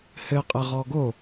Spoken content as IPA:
hɘqʼɘʁɔ ɡo

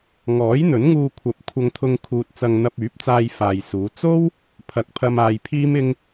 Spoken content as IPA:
ŋɔː˨˥jn̪ɵ˨˥nŋuː˧kʷʰɐ˨˥p̚ kʷʰɐ˧ŋt̪ʰʊ˧ŋkʰuː˨t̚ t͡sɐ˧ŋn̪ɐ˧p̚yː˨˥p̚t͡saː˧j faː˨jsuː˨˧ t͡so˥w | pʰɐ˨k̚pʰɐ˧m aː˧jpʰiː˥mɪ˥ŋ

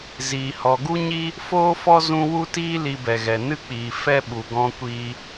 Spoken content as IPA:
ziː˨ hɔ˨ɡu˦ɲi˦ | foː˦fɔ˦ zũ˦ wu˦ tiː˦ li˧bɛ˨ɣɛ˨ nɨ˦k͡piː˨ fɛ˦ɓu˨ ɡɔ̃˧kʷiː˧

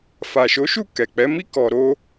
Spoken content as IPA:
fa˨ʃo˨˦ʃu˦˨ kɛ˨k͡pɛ˨˦mi˦ kɔ˧ɾo˦

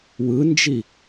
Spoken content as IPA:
wɯnd͡ʒi

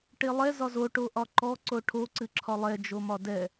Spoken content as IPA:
ʈelˠɛ zɒzo ʈoʔɒǃɔ ǀoʈʰo ǀɨǁʰɒlˠɛ d͡ʒomɒdɛ

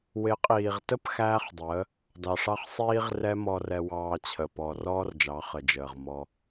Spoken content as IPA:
wɪ˨˦qʼiː˨ʁtə˦p xæː˦χdˤəː˨˦ | dɑ˨ʂɑ˦χ sˤiː˦ʁrɛ˦ mɔ˧rɛ˧ wɑː˧t͡ɕʰə˨ pɔ˨rɔː˦rd͡ʒɑ˨˦ χə˨d͡ʒəː˨ʁ mɔ˧

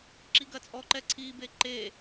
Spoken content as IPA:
ǁiɡɐt͡sʼɔǃɛ ǀʰibe ǃe

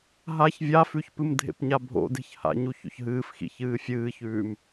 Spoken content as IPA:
ɦaç vʲafʉçpɨm dʱḛpɲabʱo̰ de̤çha̰ɲu ço̰çɦɨːfxḭ çɨːfʲɨːçʉːm

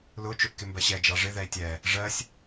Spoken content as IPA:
lʊ t͡ʃʊʔkɪmbɜɕɛ d͡ʒɑʐɪ ðɛi̯tʲɛ | ʐɜsʲ

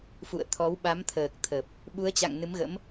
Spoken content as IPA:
fṵ˧˨ə̯t̪ʰɔ˨˦w ɓa˨˦mt̪ʰəː˨˩k̚ t̪ʰə˨˩p̚ | ɓu˨˦ə̯t͡ɕa̰˧˨ŋ nɨ˨˦mɣə̰˧˥m

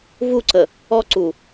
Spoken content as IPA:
vuǀə | ɔǀu

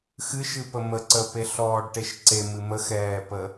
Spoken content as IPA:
xɨʃɨpəmə ǀəpeɬɔːɖʈeʃ ǀemɨ məxɛːpə

